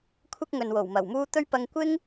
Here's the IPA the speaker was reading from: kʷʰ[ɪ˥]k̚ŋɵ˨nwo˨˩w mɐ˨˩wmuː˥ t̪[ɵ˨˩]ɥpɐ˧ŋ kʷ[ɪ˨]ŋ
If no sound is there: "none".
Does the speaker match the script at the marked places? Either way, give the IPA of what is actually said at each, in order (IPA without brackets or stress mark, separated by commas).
ɪ˥, ɵ˥, ɪ˥